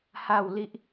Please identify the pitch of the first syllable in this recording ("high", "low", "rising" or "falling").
falling